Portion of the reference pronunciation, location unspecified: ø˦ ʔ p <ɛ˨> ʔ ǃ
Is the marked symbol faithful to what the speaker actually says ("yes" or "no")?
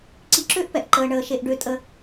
yes